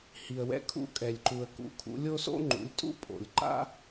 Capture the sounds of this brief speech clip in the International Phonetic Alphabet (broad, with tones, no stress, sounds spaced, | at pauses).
h i˨ ə̯ w ɛ̰˧ kʰ ṵ˧ kʼ ɛ˨ lʲ ǃ u˨ ə̯ k ṵ˧ kʰ ṵ˧ lʲ o˦ s o̰˦ ŋ͡ǃ ṵ˨˦ lʲ tʼ ṵ˦ pʼ o̰˨ lʲ ǃ a̰˦